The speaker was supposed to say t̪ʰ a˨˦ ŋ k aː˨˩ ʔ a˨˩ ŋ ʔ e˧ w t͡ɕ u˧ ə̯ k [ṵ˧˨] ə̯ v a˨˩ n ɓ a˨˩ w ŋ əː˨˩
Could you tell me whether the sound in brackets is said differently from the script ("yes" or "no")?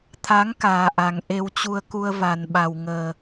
yes